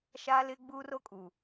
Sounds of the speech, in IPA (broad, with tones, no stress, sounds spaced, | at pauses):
ʃ aː˦ l ɪ˦ ɡ͡b uː˦ r o˦ kʼ u˨